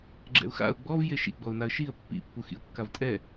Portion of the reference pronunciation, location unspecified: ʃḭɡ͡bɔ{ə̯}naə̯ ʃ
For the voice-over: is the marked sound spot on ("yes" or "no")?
no